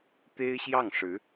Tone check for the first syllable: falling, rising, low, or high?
high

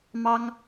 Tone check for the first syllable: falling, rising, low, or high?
high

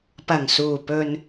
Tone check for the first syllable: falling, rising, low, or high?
low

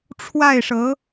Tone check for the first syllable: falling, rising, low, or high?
falling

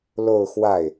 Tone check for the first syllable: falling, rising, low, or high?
falling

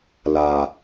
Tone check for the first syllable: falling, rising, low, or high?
low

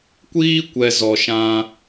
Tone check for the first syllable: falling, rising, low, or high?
high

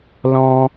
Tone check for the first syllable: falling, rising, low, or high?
high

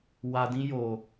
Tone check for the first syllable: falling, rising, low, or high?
low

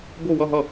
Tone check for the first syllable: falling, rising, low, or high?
falling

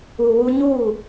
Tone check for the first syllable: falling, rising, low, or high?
low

